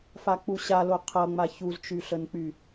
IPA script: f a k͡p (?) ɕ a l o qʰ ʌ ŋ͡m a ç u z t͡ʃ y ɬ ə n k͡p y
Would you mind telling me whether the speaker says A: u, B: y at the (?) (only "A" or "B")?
A